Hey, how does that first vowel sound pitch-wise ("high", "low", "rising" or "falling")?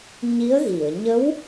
rising